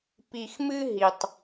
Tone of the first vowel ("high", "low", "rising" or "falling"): low